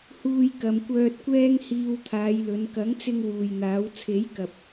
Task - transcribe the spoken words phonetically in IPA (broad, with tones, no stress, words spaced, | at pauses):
huː˧jkɐ˨mkʷœː˧t̚kʷɛː˥ŋ hiː˧wt̪ʰaː˨˧jlɵ˨˧n kɐ˨˥ŋt͡sɪ˧ŋ wuː˨jn̪aː˨˥w t͡sʰe˨˥jkɐ˨p̚